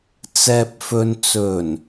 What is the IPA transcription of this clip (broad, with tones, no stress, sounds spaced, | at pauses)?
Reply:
t͡s ɛː˨ p̚ f ɵ˨ n t͡s ɵ˨˩ n